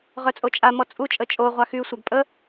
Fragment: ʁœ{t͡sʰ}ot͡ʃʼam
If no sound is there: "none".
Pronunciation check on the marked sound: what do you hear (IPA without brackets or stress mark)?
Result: t͡sʼ